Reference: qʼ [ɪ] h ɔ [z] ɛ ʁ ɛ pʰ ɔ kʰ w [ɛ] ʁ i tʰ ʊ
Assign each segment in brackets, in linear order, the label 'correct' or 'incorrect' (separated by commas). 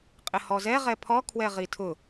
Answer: correct, correct, correct